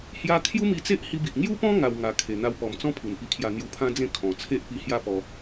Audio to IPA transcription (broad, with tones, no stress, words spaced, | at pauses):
hja˦ kʰju˦mi˧t͡se˦ʔ hi˧bi˨ʔ ŋju˦pɔ̃˦ ŋa˧w ŋa˨˩ kʰe˨˩ n̪a˧wpɔ˨˩mt͡sɔ̃˦ pʰu˨˩npi˧kʰja˧ n̪ju˧pʰã˦d͡zẽ˥˧ kʰɔ̃˨˩ t͡sʰe˦ʔpi˧ hja˥˧pɔ˧